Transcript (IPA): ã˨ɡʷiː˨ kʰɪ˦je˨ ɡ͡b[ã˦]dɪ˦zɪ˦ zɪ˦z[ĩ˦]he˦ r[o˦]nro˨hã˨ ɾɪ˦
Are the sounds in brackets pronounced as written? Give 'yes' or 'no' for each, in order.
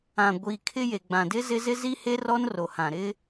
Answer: no, no, no

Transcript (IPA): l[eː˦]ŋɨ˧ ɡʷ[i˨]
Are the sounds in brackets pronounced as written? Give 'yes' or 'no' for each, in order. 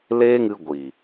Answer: yes, yes

